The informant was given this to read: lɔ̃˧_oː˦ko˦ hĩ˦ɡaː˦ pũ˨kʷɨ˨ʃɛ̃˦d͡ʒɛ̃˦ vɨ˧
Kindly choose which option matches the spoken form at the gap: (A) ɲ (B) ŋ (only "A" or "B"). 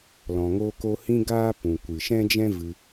B